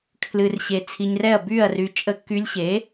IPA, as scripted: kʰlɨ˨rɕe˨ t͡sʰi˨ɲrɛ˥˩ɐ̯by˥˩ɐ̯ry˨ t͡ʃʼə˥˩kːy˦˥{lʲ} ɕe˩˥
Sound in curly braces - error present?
no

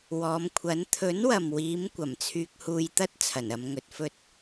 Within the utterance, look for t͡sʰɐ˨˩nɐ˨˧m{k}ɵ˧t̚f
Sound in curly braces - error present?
yes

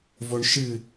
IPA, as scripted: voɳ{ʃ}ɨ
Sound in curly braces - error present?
no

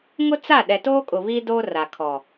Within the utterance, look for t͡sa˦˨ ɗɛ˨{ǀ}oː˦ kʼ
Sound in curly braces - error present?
yes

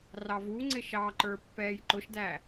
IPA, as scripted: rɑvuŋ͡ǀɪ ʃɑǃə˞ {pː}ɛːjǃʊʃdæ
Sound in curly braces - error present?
no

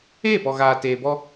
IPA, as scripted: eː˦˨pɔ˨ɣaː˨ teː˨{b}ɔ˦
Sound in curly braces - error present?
no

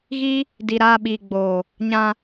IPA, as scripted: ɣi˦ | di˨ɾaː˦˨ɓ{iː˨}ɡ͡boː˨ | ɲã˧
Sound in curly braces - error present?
no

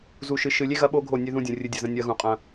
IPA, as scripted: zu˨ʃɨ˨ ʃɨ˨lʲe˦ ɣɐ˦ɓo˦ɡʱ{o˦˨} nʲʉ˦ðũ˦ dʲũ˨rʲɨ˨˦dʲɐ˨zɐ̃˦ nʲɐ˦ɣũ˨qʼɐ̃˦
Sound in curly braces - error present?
no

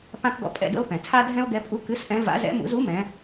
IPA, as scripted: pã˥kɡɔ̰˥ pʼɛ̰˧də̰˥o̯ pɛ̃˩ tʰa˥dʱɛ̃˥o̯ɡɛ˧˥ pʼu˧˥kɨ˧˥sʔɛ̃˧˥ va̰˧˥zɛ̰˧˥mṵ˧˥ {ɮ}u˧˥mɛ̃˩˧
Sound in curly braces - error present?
yes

